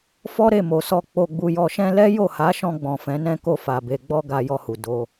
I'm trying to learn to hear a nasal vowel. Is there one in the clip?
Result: yes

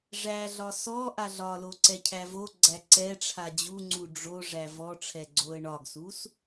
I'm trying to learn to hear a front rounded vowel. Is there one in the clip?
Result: no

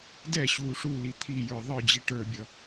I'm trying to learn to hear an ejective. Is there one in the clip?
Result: no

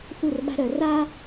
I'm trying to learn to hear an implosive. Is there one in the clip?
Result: yes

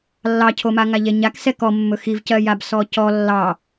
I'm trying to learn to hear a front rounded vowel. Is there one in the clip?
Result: no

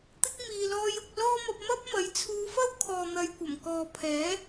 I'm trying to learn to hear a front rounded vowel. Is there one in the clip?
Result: no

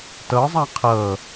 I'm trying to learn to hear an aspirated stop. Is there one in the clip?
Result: yes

